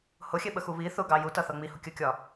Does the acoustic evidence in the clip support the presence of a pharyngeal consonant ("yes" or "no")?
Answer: no